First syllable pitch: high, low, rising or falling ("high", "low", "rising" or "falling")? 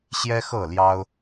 high